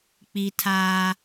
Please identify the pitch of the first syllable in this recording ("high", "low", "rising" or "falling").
high